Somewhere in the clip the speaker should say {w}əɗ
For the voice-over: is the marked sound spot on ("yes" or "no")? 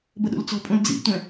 no